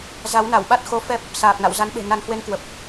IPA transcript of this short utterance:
z a˨˦ w n a˧˩ w ɓ a˦˥ t̚ x o˧ f ɛ˦˥ p̚ | s aː˨˩ k̚ n a̰˧˨ w z a˨˦ n ɓ e̤˨˩ n a˨˦ n h w e˧ n k w ə˨˩ p̚

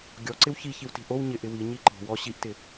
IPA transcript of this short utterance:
ɡʲ ɔ ǀ ɪ w ç i ç i w t i̤ ʔ o w ɲ ɪ ʔ ɪ w i ɲ i ǃ ɔ̤ w ɔ ɕ i ʔ t ɪ

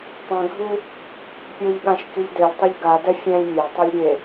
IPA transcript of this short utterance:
tˤ ɛ̃ ɡʱ u | pʲ o ʎ ɠ ã ʃ kʲ ʌ ʎ d e lʲ tˤ o ʎ ɡ a d ɛ fʲ ɛ̃ lʲ mʲ a tˤ i lʲ ɾʲ e

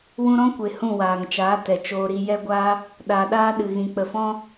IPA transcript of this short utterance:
w ũ˧ ɾ ɔ̃˦ kʷ e˨ h ũ˦˨ w aː˨ ŋ t͡ʃ aː˨˦ t ɛ˨ t͡ʃ oː˧ ɾ i˧ j ɛ˦ ɡʷ aː˦ | ɗ aː˨ ɗ aː˦ ɗ ɨ˨ ɣ ĩ˨ k͡p ə˨ f ɔ̃˦

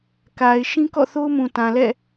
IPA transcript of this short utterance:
k a˨ ɪ̯ ʃ ĩ˦ k ɔ̰˦˨ θ o˦ ʊ̯ m ũ˨ t ã˨ l ɛ̰˦˨

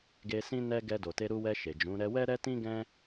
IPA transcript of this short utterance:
ɡ e˧ s ĩ˦ n ɛ˦ ɡ ɛ˧ d o˨ t e˧ ɾ u˧ w ɛ˧ ʃ e˨ d͡ʒ ũ˨˦ ɾ ɛ˧ w ɛ˦ ɾ ɛ˦ t ĩ˦ ɡ ɛ̃˦

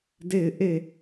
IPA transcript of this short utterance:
d e˦˨ ɪ̯ ʔ e˦˨

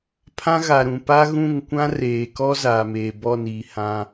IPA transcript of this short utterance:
pʰ ã˦ ɣ a˨ ɾ ũ˨ p a˦ ɣ ũ˦˨ ŋ kʷ ã˦ r eː˨ k ɔ˦ z aː˨ m eː˨ b ɔ˦˨ n iː˨ h ã˦

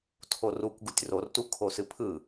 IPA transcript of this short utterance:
tʰ o r u k ɡ u tʲ r o r t u kʰ o s ɨ pʰ ɯ

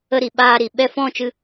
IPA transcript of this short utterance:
ə˧ ɾ i˨ ɓ aː˧ ɾ i˨ ɓ ɛ˧ f ɔ̃˦˨ t͡ʃ ɨ˧

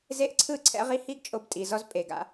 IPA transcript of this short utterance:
z e˦ ʔ ǀʰ ɯ˦˨ ǀʰ ɛ̰˦ ʁ i˦ h i˦ ɡ t͡ʃʼ o˧ b tʼ i˨ z ɔ˦ z pʼ e˨ ɡ a̰˧

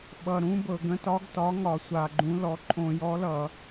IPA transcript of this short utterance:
ɓ ʌ˨˩ ɾ ũ˨˥ b ɤ˨˩ ɡ ə̃˨˥ t ɒ˨˥ ɡ t ɒ˨˥ ŋ ɒ˧˩˧ sʷ a˨˩ ɡ͡ǃ ũ˨˥ l ɔ˨˥ ǃʼ õ˧˩˧ j ɔ˨˥ l ʌ˧˩˧

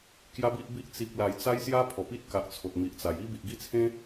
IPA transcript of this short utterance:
k j a˦ b i˦ ʔ b i˦ ʔ t͡s i˨ k̚ l a˨˩ j t͡s a˦ j s j a˦ pʰ ɔ˨˩ p i˦ t̚ k a˨ ʔ t͡sʰ o˨ t̚ m i˨ ʔ t͡s a˨˩ j i˦ b i˨ ʔ ɡ i˦ t͡sʰ ẽ˦

